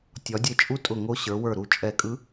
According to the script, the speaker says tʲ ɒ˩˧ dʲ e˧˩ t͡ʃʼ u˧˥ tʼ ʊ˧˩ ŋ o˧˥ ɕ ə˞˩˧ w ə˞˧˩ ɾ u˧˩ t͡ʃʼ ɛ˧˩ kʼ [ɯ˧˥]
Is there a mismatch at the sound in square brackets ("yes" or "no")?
no